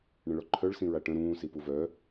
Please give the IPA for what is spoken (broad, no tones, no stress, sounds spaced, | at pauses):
ɳ ə̃ ɭ ɔ ǃʰ œ ɭ s ĩ ɹ a ʈ ə̃ ɾ ũː s i p u v œ